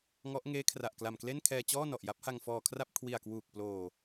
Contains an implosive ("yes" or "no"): no